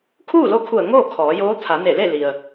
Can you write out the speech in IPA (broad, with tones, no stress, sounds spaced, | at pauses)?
kʰ uː˥˨ l o˧˥ kʰ u˧˩ ə̯ ŋ oː˥˨ kʰ ɔː˩˧ j oː˧˥ t̪ʰ a˩˧ n e˧˩ l e˥˨ l i˩ ə̯